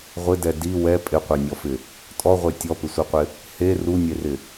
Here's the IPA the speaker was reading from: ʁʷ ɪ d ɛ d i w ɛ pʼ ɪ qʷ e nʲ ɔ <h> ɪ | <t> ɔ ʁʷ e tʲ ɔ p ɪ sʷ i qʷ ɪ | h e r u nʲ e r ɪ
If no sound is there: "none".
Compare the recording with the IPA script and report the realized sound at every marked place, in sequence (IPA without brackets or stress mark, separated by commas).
f, tʼ